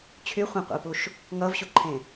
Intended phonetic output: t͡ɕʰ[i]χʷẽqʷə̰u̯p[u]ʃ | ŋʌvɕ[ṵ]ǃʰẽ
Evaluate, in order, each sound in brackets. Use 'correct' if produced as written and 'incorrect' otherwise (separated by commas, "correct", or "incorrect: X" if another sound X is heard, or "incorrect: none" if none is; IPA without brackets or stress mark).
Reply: incorrect: y, correct, incorrect: u